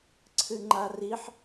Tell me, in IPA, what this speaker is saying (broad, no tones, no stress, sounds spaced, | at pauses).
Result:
ǀʰ ɨ ŋ͡ǃ a r i ħ